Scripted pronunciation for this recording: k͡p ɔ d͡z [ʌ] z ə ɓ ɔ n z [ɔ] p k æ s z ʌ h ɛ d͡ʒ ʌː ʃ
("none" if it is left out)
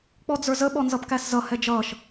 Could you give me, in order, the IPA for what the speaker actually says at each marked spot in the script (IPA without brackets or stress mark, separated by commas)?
ə˞, ʌ